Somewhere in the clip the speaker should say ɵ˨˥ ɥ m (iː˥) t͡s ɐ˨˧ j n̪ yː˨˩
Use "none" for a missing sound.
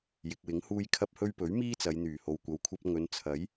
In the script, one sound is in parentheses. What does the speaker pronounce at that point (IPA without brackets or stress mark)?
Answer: iː˥